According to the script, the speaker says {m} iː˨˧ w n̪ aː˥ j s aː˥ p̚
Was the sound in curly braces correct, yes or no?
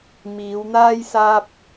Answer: yes